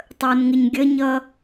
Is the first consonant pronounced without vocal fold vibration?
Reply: yes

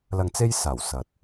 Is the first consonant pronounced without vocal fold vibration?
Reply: no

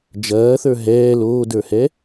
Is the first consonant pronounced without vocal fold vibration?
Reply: no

